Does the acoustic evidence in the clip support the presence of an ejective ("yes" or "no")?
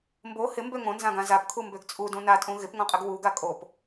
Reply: yes